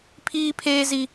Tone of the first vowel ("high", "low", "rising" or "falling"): high